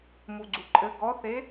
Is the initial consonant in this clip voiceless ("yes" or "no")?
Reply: no